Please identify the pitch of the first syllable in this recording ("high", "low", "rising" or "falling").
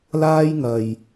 high